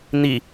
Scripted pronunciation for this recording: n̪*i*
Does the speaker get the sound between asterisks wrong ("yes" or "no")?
no